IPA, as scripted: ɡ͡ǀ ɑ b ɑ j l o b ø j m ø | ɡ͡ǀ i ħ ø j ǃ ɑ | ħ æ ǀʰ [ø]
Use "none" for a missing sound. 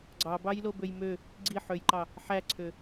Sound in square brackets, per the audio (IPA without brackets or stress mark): ø